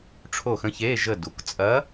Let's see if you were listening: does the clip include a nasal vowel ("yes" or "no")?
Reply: yes